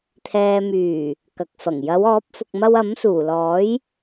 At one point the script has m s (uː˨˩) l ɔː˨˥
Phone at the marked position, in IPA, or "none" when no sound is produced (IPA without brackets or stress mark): uː˨˩